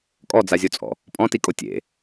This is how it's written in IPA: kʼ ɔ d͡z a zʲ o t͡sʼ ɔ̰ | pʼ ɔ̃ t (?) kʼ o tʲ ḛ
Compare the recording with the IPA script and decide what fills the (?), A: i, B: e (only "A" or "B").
A